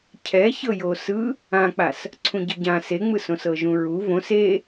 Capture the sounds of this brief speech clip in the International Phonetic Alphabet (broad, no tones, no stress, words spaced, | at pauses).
cʰɛ çɤjosɯ | ãk͡pas | ǀʰũɟɯɟã seŋ͡mɯsõs ɤʒũɹu võs e